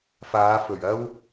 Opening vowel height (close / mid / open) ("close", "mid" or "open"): open